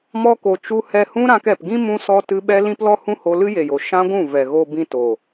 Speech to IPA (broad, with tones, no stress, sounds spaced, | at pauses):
m ɔ˧ k o˨ t͡ʃ u˧ h ɛ˧ h ũ˦ ɾ ã˧ k ɛ˨ p ɡ ĩ˦ m ũ˧ s ɔ˧ t ɨ˧ ɓ ɛ˦ l ĩ˦ p l ɔ˦ h ũ˦ h o˧ l ɨ˦ j e˨ j o˨ ʃ ã˦ ɡʷ ũ˦˨ v ɛ˨ ɣ o˧ b ĩ˧ t o˨